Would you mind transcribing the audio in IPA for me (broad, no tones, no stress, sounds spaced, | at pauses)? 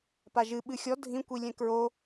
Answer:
p a ʒ ɨ ɓ ɨ xʲ ɔ dʱ ĩ kʷ i lʲ ɛ̃ k ɹ o